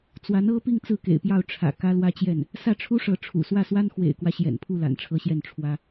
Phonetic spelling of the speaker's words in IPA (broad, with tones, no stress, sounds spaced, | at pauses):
t͡s w a˧˥ n ɤ˥ p i˥˧ ŋ t͡s ɹ̩˥˩ k ḛ˨˩ ɪ̯ p j ɑ˥˩ ʊ̯ ʈ͡ʂʰ ä̰˨˩ k ä˥ l w ä˥ t͡ɕ j ɛ˥˩ n | s ä˥˩ ʈ͡ʂʰ u˥ ʂ ɤ˧˥ ʈ͡ʂʰ ṵ˨˩ s w ä˥˩ s w a˥ n x w ḛ˨˩ ɪ̯ k w ä˦ ɕ j ɛ̰˨˩ n pʰ u˥˩ l a̰˨˩ n ʈ͡ʂʰ ɤ˥ ɕ j ɛ˥˩ n ʈ͡ʂʰ w ä˥